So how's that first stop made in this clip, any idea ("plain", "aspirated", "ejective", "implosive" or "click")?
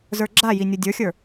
click